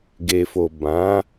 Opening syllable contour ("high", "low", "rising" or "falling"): low